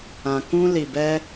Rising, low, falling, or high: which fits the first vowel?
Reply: low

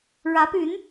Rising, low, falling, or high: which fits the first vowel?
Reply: rising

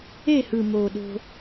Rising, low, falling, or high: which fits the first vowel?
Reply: falling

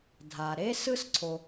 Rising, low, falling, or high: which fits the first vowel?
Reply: low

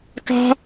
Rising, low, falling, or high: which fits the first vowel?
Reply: high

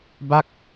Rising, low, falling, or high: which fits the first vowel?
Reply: falling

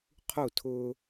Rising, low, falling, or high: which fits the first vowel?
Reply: falling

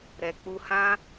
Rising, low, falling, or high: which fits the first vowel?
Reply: low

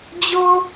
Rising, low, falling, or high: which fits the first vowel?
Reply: high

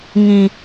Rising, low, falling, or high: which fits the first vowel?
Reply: low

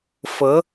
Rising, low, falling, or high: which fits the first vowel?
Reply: rising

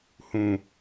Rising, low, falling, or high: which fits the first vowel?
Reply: low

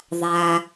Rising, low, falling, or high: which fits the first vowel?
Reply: low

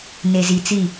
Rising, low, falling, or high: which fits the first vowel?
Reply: low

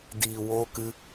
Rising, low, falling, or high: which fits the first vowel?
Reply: low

